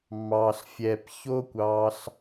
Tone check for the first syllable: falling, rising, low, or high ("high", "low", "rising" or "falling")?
low